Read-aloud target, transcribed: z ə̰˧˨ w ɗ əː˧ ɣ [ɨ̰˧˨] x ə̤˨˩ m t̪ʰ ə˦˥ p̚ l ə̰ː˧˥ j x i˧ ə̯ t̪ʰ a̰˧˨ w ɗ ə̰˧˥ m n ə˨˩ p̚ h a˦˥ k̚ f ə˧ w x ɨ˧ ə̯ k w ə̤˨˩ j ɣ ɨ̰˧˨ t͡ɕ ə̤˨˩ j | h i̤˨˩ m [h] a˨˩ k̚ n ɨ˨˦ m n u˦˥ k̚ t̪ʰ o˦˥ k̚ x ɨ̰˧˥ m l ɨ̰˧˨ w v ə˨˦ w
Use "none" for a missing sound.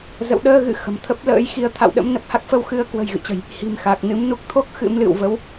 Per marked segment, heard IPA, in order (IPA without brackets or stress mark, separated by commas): ɨ̰˧˨, x